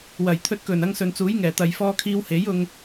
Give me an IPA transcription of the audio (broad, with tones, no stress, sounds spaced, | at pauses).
w ɐ˨˩ j t̪ʰ ɵ˧ t̚ k ɵ˨˩ n ɐ˧ ŋ s ɵ˨ n t͡s uː˨˥ j ŋ ɛː˨˩ t̪ ɐ˨ j f ɔː˧ kʰ iː˧ w h e˨˥ j ʊ˧ ŋ